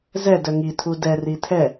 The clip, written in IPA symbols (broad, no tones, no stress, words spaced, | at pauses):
zɛ dœŋi tʰudɛ ritʰɛ